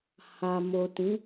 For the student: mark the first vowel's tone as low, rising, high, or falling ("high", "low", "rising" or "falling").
low